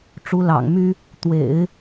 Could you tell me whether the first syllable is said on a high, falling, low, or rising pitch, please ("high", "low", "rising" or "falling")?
rising